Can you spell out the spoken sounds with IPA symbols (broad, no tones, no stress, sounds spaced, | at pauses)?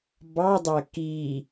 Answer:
b ɑ dˤ æ k i